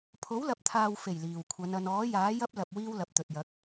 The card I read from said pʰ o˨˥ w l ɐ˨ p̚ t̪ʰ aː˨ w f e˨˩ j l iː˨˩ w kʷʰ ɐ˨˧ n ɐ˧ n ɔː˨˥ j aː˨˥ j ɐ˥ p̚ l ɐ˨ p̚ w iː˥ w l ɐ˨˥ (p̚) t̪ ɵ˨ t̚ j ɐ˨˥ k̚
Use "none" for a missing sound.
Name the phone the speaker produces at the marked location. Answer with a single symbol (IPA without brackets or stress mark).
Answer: p̚